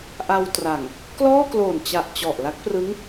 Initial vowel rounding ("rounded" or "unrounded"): unrounded